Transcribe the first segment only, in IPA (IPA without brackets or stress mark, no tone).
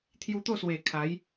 t̪ʰ